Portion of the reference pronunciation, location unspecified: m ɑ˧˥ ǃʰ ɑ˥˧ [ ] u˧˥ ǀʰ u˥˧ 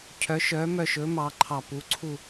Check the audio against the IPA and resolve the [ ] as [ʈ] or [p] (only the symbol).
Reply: p